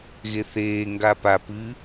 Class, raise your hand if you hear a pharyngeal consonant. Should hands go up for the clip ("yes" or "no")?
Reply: no